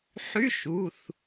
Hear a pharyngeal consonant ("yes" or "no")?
yes